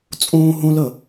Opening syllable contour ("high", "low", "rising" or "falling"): high